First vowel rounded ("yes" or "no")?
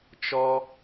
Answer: yes